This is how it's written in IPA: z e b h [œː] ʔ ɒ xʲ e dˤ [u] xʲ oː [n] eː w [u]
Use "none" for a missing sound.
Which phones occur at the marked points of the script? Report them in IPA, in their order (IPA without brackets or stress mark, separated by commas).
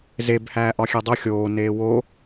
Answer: æː, u, n, o